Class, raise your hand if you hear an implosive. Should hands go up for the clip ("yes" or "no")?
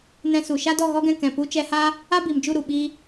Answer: yes